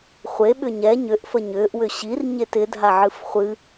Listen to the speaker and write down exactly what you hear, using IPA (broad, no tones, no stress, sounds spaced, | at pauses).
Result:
χʷ e ɓ ʏ ɲ ɛ ɲ ʏ ʔ f ə ɲ ʏː ʔ w ʏ ɕ i r ɲ e t ɪ dʱ a ʕ ɨ f χʷ ɨ